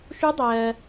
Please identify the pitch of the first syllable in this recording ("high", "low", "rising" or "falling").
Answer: rising